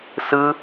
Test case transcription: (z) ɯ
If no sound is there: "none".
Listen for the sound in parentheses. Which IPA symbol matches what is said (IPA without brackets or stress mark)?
s